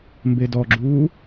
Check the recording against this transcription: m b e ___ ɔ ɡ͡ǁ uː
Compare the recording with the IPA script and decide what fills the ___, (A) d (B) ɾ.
A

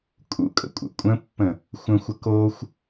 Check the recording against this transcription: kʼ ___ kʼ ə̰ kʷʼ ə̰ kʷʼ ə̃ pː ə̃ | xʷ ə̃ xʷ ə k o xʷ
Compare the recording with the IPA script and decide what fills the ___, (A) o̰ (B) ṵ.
B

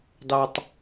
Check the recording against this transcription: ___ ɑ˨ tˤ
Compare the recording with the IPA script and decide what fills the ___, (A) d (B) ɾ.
A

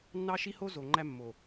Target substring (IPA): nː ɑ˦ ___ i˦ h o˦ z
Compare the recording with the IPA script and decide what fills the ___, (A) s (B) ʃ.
B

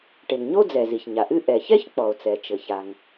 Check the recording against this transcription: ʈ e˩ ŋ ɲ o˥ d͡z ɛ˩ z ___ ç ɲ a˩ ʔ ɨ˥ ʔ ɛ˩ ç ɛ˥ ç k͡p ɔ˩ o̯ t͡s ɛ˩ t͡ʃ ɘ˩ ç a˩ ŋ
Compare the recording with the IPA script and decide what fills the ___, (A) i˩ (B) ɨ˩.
A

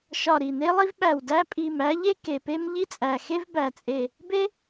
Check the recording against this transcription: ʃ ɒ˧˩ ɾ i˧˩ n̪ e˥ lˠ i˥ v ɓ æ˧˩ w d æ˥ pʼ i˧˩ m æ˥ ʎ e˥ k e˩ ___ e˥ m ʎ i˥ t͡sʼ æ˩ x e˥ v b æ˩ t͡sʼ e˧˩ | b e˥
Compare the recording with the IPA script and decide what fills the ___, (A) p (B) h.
A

